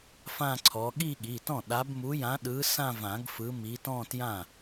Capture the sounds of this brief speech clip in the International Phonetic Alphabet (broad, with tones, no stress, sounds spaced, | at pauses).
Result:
f ã˥˧ ǀʰ ɔ˨˦ ɠ i˥˧ ɠ i˩˧˩ t ɔ̃˥˩ ɗ a˨˦ b m u˨˦ j ã˨˦ ɗ ɯ˨˦ s ã˥˧ v ã˨˩˦ ɡ f ɯ˨˦ m i˨˦ t ɔ̃˥˧ t j ã˥˩